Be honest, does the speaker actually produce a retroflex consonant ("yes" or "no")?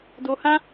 no